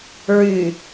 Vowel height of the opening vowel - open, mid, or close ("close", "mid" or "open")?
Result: close